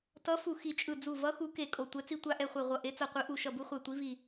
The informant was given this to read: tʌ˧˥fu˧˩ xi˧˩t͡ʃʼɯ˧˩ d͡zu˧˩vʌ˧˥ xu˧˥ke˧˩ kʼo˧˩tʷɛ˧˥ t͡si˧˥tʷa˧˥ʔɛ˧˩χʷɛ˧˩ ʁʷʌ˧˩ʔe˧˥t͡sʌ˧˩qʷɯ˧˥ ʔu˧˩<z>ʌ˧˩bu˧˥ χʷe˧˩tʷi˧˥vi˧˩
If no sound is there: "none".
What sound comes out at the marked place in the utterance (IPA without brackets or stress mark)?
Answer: ʃ